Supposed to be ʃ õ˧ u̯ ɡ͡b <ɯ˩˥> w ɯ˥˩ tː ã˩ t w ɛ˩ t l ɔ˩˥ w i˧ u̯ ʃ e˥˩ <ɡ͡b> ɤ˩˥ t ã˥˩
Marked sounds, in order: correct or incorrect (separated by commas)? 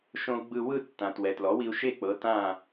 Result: incorrect, incorrect